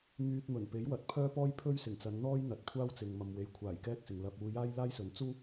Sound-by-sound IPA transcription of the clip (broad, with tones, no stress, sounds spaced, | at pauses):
ŋ yː˧ t̚ m ɵ˨˩ n p e˨˥ j w ɐ˨˥ t̚ pʰ œː˥ p ɔː˥ j pʰ ɵ˥ ɥ s ɪ˨˩ ŋ t͡s ɐ˨˧ n n̪ ɔː˥ j n̪ ɐ˨ t̚ kʷʰ aː˥ w t͡s ɪ˨ ŋ m ɐ˨ m w e˨ j kʷʰ aː˨˩ j k ɛː˥ k̚ s ɪ˨ ŋ l ɐ˧ p̚ uː˧ j aː˥ j l aː˥ j s ɵ˨˥ n t͡s uː˥